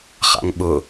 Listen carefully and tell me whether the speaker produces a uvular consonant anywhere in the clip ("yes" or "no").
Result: yes